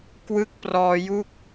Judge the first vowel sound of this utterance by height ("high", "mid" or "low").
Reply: high